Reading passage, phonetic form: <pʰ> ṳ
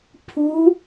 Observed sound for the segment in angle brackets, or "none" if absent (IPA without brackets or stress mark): pʰ